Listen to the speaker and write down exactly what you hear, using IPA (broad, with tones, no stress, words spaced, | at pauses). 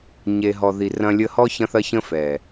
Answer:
ɲe˨ ɦɔ˨ði˨ rɐ̃˧lʲə˧hɔ˦ çɐ̃˦θɐ˦çə̃˦fɛ˨